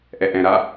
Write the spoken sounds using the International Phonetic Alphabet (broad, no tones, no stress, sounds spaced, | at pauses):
ʔ ɛ ʔ ɛ̃ ɾ a